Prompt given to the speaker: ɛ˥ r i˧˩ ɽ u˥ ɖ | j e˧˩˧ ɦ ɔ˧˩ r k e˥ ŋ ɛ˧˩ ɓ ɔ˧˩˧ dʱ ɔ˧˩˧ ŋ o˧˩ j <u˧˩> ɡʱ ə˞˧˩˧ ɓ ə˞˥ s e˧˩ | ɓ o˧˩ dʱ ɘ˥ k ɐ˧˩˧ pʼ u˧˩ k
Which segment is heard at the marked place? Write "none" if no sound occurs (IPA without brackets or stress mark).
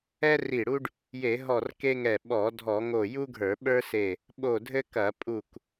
u˥